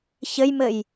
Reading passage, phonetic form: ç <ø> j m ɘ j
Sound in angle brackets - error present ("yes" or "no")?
yes